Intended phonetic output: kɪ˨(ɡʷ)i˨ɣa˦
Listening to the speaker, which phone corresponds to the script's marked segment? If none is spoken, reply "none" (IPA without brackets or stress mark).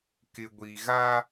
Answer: ɡʷ